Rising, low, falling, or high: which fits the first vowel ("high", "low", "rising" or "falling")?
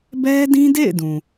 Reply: high